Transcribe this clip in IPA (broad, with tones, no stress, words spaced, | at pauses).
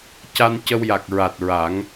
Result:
ca˧n cə˧wja˨˩k̚ɹa˨˩t̚ ɹa˨˩˦ŋ